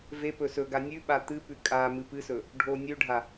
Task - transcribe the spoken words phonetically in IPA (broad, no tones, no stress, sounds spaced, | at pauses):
v e p ɵ s ɵ ɡ a nʲ ʉ ɓ a t̪ ɨ p ʉ kʼ a m ɨ p ɨ s ɵ | ɖʱ o nʲ ʉ ɖʱ a